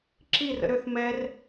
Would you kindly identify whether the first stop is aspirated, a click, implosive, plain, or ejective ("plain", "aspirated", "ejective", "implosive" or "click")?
click